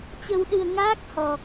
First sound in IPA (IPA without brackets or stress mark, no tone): t͡ɕ